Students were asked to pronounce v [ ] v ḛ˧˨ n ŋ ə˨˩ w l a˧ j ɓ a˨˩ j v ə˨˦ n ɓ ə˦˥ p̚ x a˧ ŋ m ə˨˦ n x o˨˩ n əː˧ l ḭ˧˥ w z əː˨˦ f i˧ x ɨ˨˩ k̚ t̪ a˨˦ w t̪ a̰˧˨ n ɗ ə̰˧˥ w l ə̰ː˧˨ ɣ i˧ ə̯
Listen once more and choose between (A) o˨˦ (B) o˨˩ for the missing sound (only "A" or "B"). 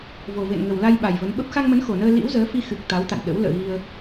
B